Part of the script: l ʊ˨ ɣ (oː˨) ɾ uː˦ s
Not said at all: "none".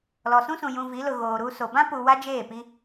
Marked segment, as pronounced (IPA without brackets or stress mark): oː˨